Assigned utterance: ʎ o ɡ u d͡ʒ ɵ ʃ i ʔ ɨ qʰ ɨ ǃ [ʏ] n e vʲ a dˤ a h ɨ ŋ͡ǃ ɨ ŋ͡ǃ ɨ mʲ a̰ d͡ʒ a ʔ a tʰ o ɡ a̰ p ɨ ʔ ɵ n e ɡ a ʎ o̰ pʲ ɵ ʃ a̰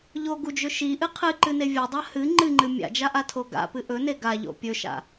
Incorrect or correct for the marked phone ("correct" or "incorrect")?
incorrect